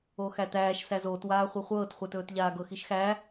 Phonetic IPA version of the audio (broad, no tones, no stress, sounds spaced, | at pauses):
oː x æ t̪ æː ʃ s æ z oː t w aː χʷ ɤ χʷ ɤː t χʷ ɛ t ɵː t ʎ aː ɡ ɤ x i ʃ x æ